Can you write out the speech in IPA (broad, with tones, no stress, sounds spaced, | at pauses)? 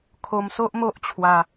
kʰ o˧ m s o˦ ʔ m o˦ ʔ t͡ɕʰ w a˧